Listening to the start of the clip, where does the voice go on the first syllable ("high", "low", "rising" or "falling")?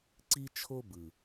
high